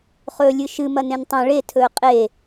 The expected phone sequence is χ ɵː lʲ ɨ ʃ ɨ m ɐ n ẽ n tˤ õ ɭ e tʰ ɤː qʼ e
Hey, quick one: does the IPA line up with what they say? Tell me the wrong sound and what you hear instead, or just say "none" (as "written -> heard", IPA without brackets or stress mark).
ɤː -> ɵː